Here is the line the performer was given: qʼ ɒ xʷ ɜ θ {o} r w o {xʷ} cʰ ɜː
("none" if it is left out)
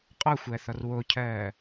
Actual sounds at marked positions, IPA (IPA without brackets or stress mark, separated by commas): ɔ, none